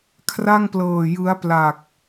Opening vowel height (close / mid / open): open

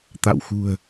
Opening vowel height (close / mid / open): open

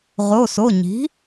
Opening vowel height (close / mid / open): mid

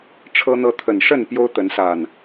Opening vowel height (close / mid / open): mid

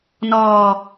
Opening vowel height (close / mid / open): mid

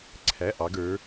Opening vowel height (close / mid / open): open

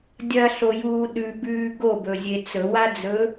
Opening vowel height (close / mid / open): open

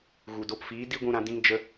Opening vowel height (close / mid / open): close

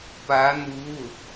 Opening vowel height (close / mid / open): open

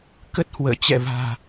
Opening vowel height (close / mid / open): mid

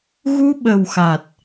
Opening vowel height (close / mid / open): close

